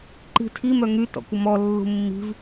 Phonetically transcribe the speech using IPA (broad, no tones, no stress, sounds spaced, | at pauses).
ǃ i̤ tʰ i m œ ŋ y t ɔ̰ kʷ ə m ɔ lː ṳ mː i̤ v